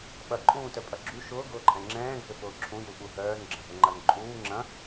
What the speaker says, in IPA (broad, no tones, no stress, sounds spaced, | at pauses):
ɓ ɐ ǃʼ ũː t œ pʼ ɐ ɡ͡ǁ u ʃ ʊː ɡ ʊː ǃʼ ɛ̃ ŋ͡ǁ ɛ̃ː ɡʱ ʏ f ʊː ǁʰ ũ j u ɓ u ɦ œː n ɡ͡ǁ ɐ̃ ɦ ʊ ŋ͡ǃ ɐ n ǃʼ uː ŋ͡ǁ ɐ̃